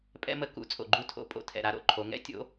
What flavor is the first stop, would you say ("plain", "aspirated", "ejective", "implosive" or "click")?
ejective